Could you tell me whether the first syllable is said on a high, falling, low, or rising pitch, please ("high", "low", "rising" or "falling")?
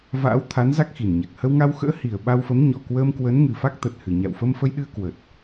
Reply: rising